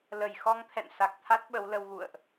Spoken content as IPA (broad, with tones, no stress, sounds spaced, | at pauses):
l ə˧˩ j x ɔ˧ ŋ t̪ʰ ɛ̰˧˨ n s a˨˩ k̚ t̪ʰ a˦˥ t̚ ɓ ə˨˦ w l ə˧ w ɣ ṵ˧˨ ə̯ ʔ